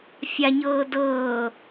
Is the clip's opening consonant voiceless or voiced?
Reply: voiceless